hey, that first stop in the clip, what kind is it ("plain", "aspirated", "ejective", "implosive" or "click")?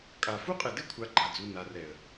ejective